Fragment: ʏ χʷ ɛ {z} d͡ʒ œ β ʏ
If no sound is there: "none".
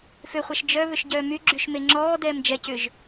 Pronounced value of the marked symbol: ʃ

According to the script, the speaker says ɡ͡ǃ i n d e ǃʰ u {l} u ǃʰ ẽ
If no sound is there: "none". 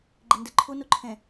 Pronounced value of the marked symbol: n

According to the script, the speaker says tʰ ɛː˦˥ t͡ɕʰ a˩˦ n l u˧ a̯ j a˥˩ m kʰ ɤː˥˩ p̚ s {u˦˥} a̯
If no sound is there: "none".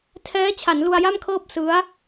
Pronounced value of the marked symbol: ɯ˦˥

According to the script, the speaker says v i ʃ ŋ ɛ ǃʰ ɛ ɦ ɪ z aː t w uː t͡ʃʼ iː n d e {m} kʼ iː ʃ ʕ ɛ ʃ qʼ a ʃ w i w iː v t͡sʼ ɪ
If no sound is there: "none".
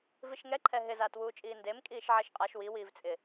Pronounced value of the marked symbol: m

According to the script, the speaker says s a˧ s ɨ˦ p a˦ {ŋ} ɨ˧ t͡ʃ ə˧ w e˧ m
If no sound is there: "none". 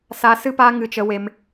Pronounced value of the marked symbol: ŋ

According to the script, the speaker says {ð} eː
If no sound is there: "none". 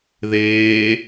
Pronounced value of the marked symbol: ð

